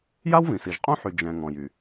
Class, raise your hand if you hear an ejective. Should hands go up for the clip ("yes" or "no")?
yes